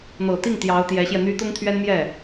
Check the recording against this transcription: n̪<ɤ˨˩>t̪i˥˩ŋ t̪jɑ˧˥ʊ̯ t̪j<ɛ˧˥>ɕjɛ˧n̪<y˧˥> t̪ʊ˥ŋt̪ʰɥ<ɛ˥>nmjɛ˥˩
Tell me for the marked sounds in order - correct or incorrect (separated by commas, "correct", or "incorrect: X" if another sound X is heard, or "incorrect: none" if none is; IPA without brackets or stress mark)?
correct, correct, incorrect: y˥, correct